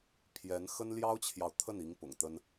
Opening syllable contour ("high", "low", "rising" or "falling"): rising